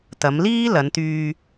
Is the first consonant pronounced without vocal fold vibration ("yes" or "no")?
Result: yes